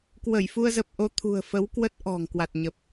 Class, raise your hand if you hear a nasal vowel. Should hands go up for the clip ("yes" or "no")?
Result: no